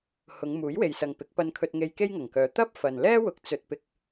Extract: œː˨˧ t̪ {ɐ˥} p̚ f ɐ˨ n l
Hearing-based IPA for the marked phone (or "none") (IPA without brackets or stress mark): ɐ˥